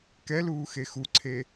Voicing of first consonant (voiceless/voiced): voiceless